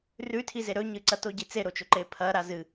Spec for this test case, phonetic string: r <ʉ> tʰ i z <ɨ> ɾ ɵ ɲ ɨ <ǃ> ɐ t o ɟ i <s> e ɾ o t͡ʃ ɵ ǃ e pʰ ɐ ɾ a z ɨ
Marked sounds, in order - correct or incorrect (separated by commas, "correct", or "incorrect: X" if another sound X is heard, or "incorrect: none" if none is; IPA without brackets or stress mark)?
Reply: correct, incorrect: e, incorrect: ǀ, incorrect: t͡s